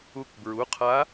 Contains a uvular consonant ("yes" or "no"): yes